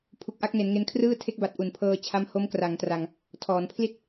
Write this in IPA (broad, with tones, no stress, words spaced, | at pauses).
pʰu˨˩k̚ʔa˥˩k̚ne˩˦n ŋe˧nkʰrɯː˥˩ tʰe˦˥k̚ba˨˩t̚ ʔu˨˩npʰɤː˧t͡ɕʰa˦˥m ho˦˥mkra˩˦ŋtra˧ŋ | tʰɔː˩˦npʰli˥˩t̚